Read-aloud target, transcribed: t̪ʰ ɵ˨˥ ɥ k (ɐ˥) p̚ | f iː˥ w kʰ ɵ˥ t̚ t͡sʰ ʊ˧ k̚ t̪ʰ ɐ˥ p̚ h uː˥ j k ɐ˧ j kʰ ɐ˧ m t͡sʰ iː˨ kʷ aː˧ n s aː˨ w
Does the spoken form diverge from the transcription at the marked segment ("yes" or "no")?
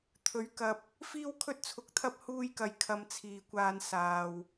yes